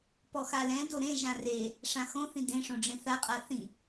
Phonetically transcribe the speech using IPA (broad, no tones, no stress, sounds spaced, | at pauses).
p ɔ x a l ɛ̃ d o ɾ ẽ ʒ ã r e | ʂ ã x õ θ ĩ d ẽ ʂ õ ɖ͡ʐ ẽ θ a qʼ a θ ĩ